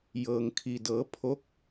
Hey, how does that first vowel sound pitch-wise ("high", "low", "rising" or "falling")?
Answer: low